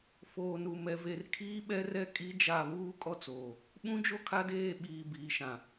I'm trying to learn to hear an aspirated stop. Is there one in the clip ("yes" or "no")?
yes